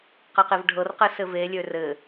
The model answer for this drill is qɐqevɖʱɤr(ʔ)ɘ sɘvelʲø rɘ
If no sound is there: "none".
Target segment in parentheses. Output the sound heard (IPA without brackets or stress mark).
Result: q